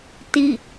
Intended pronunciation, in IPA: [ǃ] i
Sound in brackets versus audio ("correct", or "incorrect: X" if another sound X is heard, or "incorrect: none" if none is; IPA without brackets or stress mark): incorrect: t